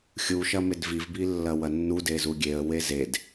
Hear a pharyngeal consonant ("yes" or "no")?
no